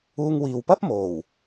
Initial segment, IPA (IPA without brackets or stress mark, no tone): uː